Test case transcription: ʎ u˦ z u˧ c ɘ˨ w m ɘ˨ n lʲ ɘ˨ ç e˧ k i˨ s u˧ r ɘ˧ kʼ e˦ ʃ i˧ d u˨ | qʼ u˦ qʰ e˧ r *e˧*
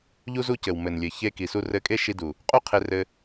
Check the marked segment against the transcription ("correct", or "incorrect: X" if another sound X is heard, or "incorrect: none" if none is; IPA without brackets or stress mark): incorrect: ɘ˧